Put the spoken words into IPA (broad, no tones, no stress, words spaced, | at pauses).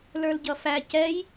lə˞lɟʌfæ cɛj